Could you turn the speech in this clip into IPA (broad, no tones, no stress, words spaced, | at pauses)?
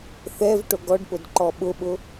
θɛv ʈoɡɔɖpʊd ǃɔɓʊɓʊ